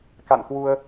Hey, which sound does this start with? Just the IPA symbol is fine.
k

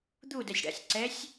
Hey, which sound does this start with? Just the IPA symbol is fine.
d̪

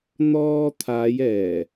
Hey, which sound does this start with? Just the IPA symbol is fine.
n̪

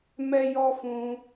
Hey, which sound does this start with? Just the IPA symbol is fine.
m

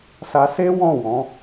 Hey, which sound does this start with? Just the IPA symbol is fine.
s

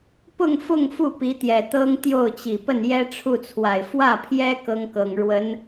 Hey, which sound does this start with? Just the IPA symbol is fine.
p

